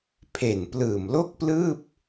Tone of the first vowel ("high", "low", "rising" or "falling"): low